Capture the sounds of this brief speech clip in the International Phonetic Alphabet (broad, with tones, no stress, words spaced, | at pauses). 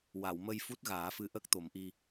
wa˨˩˨wmə˧j fu˦˥t̚ɣaː˨˩˦fɨ˧˥ʔə˦˥k̚ t̪o˨˩˦mʔi˧